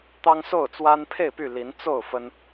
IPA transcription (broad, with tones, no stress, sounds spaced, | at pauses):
t̪ ɑ˦ ŋ s o˥˨ ʊ̯ t͡s w a˦ n pʰ e˥˨ ɪ̯ p y˥˨ l i˨˦ n t͡s o˥˨ ʊ̯ f ə˦ n